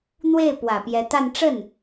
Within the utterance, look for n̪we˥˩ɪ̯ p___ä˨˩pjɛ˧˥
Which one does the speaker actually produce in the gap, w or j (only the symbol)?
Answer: w